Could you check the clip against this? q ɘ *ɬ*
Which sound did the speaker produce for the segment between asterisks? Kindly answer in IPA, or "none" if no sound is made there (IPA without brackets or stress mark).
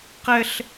ɬ